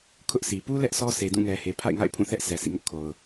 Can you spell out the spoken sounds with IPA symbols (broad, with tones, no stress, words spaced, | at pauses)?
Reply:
kʰʊ˦ʔsʰi˨ pu˦ lɛ˦ʔsɔ˦ sʰe˨dũ˦˨ŋɛ˨he˨ pʰa̰˦˨ɪ̯ŋa̰˦˨ɪ̯ pʰũ˦˨θɛ˦ʔ sɛ˨sʰḭ˦˨ŋʊ˦ʔ kʰo˨ʊ̯